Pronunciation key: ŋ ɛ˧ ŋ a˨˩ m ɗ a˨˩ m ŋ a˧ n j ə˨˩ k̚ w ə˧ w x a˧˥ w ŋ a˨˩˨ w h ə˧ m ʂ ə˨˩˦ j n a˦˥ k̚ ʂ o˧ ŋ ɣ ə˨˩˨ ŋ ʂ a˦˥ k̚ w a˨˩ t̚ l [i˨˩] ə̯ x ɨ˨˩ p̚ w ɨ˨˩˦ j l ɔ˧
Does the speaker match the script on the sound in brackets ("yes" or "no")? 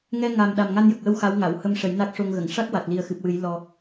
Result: yes